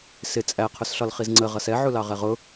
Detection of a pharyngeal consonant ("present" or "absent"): present